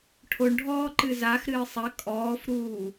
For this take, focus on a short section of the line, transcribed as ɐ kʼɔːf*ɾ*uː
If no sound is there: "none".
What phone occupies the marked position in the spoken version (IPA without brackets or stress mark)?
ɾ